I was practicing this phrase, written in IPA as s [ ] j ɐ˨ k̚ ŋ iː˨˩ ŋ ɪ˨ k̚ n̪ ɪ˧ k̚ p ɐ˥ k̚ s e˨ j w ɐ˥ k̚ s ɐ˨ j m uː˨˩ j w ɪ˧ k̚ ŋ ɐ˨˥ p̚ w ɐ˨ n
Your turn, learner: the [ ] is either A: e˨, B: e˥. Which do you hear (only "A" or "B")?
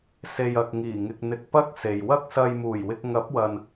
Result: A